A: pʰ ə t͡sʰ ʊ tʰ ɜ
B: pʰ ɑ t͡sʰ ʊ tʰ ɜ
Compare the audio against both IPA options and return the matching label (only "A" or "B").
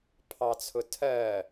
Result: B